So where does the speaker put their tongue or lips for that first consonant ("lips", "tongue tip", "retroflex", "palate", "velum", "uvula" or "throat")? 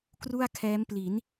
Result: velum